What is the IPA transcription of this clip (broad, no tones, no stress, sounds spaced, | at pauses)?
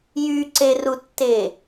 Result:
j y ǀ e r u tː e